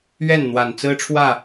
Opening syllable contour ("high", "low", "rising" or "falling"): falling